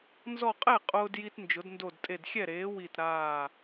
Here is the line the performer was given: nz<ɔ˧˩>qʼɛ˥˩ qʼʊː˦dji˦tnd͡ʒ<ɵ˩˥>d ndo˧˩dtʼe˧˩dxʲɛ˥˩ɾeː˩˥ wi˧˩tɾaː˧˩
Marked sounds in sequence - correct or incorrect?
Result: correct, incorrect

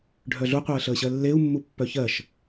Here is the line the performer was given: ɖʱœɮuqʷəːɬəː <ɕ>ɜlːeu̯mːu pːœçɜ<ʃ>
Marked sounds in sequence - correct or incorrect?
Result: correct, correct

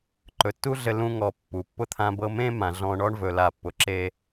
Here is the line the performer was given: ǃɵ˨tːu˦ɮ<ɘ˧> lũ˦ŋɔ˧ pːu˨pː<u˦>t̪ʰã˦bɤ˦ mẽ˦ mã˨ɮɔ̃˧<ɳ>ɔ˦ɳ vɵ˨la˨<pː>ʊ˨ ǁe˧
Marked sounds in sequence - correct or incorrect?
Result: correct, incorrect, correct, correct

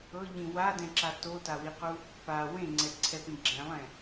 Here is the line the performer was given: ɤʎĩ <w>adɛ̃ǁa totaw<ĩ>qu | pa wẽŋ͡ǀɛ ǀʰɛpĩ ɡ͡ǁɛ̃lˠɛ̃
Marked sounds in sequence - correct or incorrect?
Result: correct, incorrect

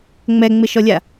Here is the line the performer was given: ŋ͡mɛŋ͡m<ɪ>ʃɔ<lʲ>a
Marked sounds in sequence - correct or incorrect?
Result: correct, correct

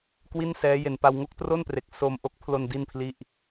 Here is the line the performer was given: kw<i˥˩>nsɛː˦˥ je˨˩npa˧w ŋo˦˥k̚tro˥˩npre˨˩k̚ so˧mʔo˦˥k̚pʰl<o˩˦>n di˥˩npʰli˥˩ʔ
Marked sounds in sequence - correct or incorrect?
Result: correct, incorrect

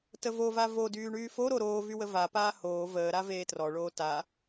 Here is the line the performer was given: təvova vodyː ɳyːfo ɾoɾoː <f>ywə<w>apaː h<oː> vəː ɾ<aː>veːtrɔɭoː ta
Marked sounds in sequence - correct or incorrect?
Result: incorrect, incorrect, correct, incorrect

